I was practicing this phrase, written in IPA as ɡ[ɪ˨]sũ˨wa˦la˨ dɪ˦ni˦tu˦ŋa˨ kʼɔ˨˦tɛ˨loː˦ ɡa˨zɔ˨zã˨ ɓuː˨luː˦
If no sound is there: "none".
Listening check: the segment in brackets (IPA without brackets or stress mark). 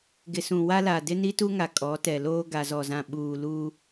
ɪ˨